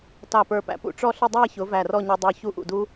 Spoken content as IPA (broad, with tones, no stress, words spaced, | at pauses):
tɑ˧˩pə˞˧˩pæ̰˧ pṵ˥˧ʈ͡ʂɔ˥˧ɬə˥˧ dˤæ˥˧çʊ˩˧ væ˧˩rɔ˥˧ɲə˞˧ dˤə˞˧ çu˥˧ʔṵ˧˩du˥